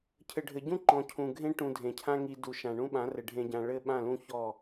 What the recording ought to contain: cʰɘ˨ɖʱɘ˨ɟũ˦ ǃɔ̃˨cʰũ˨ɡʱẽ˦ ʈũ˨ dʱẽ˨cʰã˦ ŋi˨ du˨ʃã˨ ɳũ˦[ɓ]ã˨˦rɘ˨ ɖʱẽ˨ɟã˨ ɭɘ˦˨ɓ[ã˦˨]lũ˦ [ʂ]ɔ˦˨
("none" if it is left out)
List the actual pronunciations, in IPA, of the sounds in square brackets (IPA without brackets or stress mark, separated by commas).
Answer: ɓ, ã˦˨, ç